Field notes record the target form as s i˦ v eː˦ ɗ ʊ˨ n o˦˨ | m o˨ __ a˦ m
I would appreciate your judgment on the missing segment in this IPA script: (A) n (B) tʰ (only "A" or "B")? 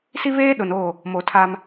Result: B